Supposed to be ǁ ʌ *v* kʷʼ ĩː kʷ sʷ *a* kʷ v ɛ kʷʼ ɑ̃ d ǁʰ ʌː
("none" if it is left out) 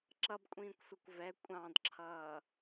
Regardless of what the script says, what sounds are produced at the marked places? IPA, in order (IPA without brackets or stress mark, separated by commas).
b, ʌ